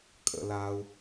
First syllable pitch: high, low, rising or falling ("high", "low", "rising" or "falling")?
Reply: high